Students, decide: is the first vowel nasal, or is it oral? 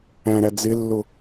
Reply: nasal